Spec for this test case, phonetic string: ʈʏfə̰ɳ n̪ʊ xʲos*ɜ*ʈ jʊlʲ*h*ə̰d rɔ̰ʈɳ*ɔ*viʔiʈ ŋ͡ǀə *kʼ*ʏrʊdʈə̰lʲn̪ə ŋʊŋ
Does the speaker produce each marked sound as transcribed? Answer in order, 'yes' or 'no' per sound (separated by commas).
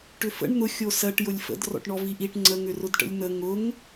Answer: yes, no, yes, no